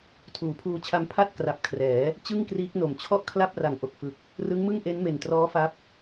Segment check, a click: absent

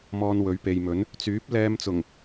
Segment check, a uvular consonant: absent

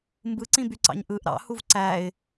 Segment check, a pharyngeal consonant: absent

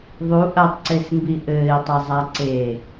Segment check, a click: present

